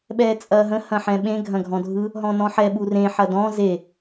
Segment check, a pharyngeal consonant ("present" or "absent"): present